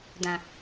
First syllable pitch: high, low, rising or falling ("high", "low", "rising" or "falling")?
low